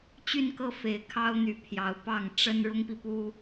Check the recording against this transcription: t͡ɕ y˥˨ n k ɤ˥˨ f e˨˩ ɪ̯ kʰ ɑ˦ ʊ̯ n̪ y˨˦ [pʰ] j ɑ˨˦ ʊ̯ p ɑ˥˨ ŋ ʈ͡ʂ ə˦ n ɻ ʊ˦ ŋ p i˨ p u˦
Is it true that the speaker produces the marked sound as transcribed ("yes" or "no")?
yes